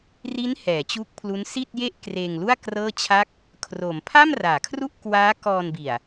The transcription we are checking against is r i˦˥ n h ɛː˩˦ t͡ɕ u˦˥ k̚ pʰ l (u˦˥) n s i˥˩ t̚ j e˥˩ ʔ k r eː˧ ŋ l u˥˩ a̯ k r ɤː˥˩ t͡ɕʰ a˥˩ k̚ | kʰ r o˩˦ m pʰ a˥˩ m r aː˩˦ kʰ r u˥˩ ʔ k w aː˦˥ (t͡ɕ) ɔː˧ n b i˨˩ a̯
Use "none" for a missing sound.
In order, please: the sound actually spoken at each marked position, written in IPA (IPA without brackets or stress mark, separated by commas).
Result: u˦˥, k